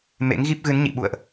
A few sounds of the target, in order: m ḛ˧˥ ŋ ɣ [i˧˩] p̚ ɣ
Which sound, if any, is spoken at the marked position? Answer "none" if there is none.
i˦˥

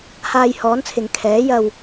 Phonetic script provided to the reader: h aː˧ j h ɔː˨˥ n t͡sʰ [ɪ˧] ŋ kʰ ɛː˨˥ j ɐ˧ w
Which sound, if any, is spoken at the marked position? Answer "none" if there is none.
ɪ˨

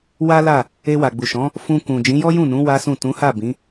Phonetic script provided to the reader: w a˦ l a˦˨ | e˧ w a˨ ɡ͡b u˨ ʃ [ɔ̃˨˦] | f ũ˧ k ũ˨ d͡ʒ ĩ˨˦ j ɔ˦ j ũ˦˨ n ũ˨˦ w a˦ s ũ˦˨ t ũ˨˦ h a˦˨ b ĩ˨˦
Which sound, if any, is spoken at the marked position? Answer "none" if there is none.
ɔ̃˨˦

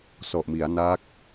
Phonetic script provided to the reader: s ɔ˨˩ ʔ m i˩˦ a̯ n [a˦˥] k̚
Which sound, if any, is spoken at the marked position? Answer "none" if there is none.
a˦˥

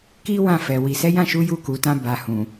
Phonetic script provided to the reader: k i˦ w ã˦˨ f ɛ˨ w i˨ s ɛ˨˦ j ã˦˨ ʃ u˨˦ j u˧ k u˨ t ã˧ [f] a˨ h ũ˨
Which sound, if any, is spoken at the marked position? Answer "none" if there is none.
b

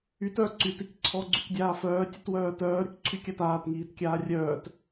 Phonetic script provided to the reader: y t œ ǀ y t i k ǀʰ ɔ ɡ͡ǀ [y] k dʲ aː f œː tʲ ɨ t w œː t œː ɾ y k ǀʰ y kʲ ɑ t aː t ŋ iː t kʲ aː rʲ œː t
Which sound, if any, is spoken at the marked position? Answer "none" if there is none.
y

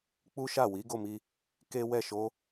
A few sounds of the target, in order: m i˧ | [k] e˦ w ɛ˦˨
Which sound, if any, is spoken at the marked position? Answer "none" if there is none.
k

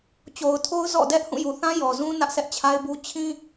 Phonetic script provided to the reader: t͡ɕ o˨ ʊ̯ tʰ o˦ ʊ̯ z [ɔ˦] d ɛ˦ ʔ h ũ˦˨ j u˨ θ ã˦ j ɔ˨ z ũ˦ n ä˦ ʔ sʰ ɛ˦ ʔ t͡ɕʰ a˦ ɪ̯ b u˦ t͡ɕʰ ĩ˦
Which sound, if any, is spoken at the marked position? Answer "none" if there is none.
ɔ̰˦˨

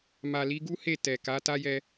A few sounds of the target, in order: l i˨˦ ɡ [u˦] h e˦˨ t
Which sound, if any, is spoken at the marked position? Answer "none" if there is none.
u˦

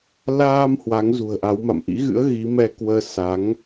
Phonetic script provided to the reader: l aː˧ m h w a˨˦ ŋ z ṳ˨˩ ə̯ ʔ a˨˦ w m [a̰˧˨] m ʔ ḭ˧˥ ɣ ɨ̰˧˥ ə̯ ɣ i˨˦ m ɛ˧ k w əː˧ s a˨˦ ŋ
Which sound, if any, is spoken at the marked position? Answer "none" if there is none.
a̰˧˨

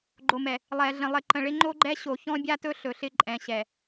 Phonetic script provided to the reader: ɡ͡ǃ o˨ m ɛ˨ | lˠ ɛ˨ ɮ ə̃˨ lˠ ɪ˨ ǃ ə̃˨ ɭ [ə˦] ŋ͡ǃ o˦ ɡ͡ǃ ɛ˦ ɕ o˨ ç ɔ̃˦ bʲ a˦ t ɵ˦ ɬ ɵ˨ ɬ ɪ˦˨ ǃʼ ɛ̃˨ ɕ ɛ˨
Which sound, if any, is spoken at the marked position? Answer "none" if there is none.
ɪ˦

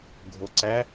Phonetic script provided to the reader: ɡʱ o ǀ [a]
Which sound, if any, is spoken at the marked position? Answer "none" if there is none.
æ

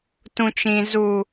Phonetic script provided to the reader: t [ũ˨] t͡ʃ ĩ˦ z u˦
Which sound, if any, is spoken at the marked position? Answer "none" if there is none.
ũ˦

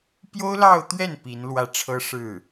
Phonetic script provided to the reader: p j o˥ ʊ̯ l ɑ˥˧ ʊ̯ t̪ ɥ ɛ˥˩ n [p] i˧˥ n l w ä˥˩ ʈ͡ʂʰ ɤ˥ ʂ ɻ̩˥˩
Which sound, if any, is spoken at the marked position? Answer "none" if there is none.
p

